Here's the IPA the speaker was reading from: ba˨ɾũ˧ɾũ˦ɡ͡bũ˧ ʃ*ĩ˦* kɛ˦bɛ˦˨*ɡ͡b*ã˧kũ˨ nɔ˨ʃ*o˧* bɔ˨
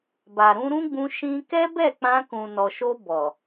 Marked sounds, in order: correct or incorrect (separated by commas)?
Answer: correct, incorrect, correct